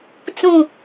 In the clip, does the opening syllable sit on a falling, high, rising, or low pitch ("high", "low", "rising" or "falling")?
falling